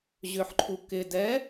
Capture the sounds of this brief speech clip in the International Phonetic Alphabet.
ʑ ʏ ħ ǃʰ u k ɪ d ɛ

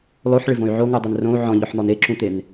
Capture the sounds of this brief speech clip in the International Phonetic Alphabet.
lˠ o ħ ɭ ɪ v õ y̯ ʕ o ŋ u dˤ e n r õ u̯ ʕ ɔ̃ ʎ ɔ ħ n̪ ɔ n e ǁ ũ t̪ e n

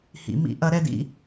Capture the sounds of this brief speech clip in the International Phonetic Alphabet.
h ḭ˨ m ḭ˧ ʔ ɐ˨˦ ɾ ɛ˧ d ḭ˦

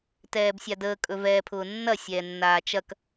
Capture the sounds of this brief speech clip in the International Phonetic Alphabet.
t ɛː b sʲ a d əː kʼ ɵ v ɛː pʰ ʊː nː ɐ sʲ ɛː nː aː t͡ʃ ɐ k

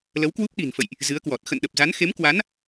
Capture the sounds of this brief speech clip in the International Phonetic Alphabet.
l ə˨˦ w k w u˦˥ p̚ ɗ i̤˨˩ n f ə̰˧˨ j ʔ | z ɨ˨˦ ə̯ k w ɔ˨˩ t̚ x ə̰˧˨ n ɗ ə˨˩ p̚ z a˨˦ n x e˨˦ m k w a˨˦ n

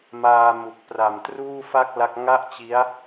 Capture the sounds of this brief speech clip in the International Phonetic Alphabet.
m aː˧ m u˨˩ k̚ p r a˨˩ m t r uː˥˩ f a˥˩ k̚ l a˦˥ k̚ ŋ a˥˩ ʔ t͡ɕ i˦˥ a̯

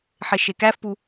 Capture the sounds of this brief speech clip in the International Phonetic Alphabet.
ħ e ʃ e k æ f p u

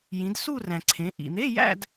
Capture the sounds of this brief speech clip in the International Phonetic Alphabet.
j ĩ˩˧ d s u˥˧ r æ̃˩ ǀʰ ẽ˩˧ ʔ ḭ˩ n̪ e˧˥˧ j æ̰˥˧ d

